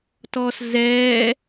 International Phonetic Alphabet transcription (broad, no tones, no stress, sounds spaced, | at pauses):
t ɔː s z ɛː